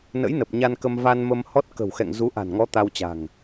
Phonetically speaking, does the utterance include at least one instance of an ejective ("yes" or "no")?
no